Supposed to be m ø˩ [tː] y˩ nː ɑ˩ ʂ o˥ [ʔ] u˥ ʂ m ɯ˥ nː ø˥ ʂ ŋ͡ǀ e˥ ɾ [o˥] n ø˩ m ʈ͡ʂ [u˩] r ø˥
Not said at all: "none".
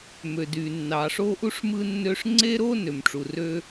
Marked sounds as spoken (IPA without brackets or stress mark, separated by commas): d, ʔ, o˥, u˩